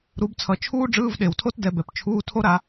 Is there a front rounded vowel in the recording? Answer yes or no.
no